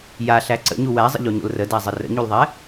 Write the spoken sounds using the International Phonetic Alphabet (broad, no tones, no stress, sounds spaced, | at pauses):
j a ɬ æ ǀ ə̰ ɲ u w æ zˤ ə̰ ʎ o ɲ o̰ l r ə d æ zˤ ə r ə̰ ɲ u l ðˤ ɛ